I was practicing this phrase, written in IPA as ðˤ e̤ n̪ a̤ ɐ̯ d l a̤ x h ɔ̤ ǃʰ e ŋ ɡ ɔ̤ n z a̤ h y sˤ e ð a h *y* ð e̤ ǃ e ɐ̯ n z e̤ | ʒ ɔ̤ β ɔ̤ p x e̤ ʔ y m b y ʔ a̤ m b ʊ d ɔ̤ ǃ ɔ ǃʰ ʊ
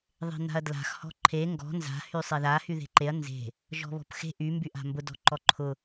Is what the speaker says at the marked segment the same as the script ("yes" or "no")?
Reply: yes